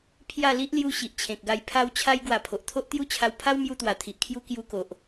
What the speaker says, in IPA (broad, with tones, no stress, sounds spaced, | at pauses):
pʰ j a˥˧ l i˦ ʔ l j u˧ ɕ i˨ ʔ t͡ɕʰ ẽ˨ k̚ ɡ a˧ j pʰ a˦ w t͡ɕʰ a˦ j ɡ w a˧ pʰ o˨ ʔ t̪ʰ o˦ ʔ t̪ j u˥˧ t͡ɕʰ a˧ w pʰ a˦ w m j u˧ t̪ w a˨˩ t̪ʰ i˨ ʔ kʰ j u˦ k j u˦ k o˨ ʔ